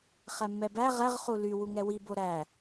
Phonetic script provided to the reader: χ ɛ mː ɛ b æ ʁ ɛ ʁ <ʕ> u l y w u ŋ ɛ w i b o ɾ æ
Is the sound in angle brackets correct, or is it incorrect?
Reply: incorrect